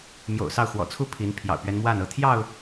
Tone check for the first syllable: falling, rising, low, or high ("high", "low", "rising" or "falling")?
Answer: low